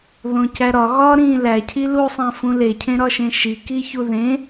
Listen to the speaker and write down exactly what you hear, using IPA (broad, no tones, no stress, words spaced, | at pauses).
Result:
ðõcæɾɒ ɣɒɾĩː læcʰi lusˤæ̃fũ lecʰẽɾɒʃẽ ʃi kiçuðẽ